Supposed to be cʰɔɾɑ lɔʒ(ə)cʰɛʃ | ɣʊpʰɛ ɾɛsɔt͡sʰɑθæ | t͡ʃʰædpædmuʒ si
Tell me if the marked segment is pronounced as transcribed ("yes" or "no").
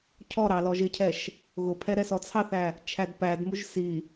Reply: no